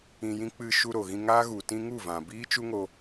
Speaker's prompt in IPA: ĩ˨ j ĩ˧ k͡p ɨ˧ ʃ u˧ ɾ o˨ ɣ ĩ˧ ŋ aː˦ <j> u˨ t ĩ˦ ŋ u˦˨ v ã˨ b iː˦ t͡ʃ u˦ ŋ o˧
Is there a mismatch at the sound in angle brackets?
yes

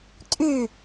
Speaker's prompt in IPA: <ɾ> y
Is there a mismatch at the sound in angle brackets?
yes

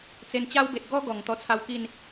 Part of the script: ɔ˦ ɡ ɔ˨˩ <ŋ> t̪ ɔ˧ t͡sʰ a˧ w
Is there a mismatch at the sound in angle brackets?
no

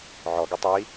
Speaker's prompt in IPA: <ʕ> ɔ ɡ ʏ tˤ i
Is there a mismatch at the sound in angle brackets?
no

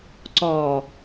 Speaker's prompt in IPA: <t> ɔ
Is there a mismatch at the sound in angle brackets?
yes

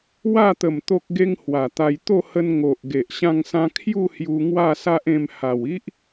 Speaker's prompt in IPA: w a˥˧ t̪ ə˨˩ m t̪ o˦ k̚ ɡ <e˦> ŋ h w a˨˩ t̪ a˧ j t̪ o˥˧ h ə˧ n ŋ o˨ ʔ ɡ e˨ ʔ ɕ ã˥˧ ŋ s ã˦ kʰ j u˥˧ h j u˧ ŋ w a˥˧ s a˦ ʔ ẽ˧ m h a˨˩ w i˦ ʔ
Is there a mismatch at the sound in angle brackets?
no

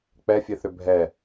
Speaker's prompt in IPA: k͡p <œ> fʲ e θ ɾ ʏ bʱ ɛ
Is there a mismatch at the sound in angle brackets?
yes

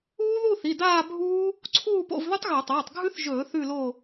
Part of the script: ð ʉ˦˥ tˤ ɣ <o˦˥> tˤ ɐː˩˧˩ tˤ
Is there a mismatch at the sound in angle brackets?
yes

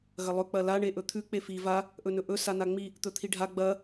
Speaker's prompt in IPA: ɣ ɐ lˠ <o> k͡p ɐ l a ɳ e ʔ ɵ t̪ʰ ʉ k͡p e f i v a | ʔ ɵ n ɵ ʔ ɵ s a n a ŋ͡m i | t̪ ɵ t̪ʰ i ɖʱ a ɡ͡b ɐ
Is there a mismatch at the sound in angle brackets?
yes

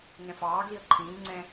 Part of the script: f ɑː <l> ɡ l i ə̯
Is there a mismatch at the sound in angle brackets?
yes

